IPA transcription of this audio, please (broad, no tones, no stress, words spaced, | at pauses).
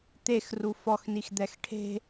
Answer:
t̪exru fɔxnixd̪ɛx ʈʰe̤